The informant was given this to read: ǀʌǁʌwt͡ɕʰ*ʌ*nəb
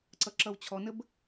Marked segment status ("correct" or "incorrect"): incorrect